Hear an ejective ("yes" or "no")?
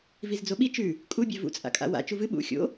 yes